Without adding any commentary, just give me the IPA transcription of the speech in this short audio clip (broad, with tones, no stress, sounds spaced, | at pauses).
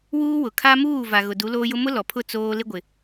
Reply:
w uː˦ w ʊ˨ kʰ a˦ m uː˦˨ v a˨ ɣ ʊ˨ d u˨˦ l oː˦ j ʊ˦ m ʊ˦ l ɔ˨ pʰ ʊ˦˨ t͡s oː˦ l ɪ˦ ɡʷ ɪ˨